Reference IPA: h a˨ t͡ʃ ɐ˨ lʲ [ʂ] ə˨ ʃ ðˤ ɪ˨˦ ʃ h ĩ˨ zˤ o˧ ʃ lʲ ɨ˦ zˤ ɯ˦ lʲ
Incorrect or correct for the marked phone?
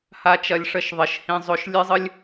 correct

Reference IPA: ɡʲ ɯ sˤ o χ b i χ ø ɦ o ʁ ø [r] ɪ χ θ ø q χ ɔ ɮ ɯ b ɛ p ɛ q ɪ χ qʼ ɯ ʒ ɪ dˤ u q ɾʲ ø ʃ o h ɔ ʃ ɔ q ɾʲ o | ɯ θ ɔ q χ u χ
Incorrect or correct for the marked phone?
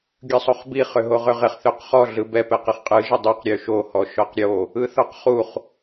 incorrect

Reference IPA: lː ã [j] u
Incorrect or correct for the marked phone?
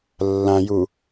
correct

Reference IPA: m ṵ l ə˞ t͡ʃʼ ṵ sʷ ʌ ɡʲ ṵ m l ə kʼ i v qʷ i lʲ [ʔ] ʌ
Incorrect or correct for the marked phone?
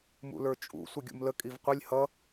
incorrect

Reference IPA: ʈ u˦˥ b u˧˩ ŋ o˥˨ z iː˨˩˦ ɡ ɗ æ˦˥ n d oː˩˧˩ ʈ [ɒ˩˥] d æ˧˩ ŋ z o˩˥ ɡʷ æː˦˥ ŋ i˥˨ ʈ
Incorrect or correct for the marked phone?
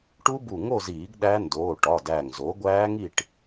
incorrect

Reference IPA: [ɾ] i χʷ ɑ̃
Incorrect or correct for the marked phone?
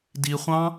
incorrect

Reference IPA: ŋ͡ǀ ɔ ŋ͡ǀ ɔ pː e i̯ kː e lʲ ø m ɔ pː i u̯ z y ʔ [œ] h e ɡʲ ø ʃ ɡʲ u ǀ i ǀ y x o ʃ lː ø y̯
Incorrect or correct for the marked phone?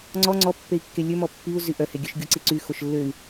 correct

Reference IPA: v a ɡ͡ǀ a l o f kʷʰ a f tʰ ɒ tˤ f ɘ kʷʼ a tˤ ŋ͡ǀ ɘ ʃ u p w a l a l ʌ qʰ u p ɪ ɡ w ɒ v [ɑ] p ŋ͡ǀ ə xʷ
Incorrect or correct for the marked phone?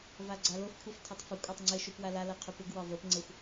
incorrect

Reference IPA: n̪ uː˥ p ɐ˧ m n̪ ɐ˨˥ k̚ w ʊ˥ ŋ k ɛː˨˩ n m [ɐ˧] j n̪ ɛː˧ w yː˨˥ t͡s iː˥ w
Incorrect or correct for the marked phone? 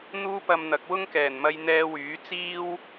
correct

